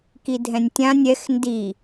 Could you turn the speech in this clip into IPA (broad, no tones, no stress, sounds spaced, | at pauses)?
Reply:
k i dʱ ɛ̃ nʲ tʲ ã nʲ ɛ x n d i